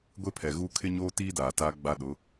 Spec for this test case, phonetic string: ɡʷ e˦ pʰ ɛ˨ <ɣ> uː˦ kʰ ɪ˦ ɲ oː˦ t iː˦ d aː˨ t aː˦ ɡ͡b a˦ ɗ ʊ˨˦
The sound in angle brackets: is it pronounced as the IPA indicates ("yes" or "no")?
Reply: yes